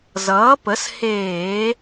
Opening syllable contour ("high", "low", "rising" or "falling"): rising